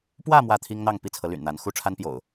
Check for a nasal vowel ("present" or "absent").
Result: absent